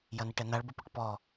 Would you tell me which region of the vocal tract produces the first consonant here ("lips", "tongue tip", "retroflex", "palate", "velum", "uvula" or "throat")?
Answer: palate